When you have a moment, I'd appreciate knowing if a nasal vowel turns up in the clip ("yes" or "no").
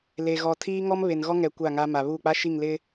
no